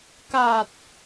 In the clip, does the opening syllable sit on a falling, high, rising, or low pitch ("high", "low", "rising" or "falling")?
low